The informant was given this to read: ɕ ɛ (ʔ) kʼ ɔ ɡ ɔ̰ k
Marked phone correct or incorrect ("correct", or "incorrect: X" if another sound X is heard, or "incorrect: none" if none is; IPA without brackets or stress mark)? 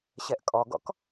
correct